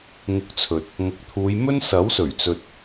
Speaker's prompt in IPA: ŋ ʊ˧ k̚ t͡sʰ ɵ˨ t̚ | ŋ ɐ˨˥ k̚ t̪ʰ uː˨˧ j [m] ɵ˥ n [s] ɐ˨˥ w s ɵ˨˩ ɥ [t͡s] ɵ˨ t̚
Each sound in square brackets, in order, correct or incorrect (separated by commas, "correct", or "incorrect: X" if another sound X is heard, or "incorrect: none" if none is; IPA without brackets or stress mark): correct, correct, correct